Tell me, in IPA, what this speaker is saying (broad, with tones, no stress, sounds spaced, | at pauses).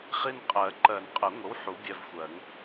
χ i˦˨ n qʼ ɜ˨˩˦ ǃ ɜ˨˩˦ n qʼ ə˨˩˦ ŋʷ ə˨˥ w ħ u˨˥ bʲ ɛ˦˨ v xʷ ɜ˨˩˦ ŋ